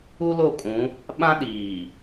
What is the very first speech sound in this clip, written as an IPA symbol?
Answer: u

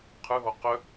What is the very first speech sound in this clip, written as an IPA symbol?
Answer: qʰ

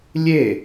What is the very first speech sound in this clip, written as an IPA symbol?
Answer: lʲ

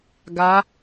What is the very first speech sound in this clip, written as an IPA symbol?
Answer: ɡ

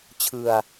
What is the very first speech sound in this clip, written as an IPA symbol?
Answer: t͡ɕʰ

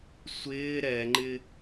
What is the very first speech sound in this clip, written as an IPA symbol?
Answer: sʷ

